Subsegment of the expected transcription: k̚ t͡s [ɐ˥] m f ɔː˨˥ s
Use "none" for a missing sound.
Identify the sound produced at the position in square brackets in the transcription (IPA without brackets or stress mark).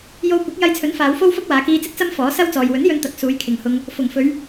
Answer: ɐ˥